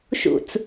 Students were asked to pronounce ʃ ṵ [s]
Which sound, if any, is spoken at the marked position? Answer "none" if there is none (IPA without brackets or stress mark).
t͡s